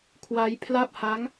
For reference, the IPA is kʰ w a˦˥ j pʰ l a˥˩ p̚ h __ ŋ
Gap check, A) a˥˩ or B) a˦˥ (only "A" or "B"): B